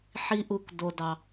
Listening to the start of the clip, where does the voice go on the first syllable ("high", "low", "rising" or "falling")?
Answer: low